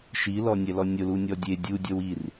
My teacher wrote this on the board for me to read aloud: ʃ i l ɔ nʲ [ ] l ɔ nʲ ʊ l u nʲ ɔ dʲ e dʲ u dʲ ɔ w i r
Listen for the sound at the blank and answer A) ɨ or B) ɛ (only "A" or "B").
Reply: B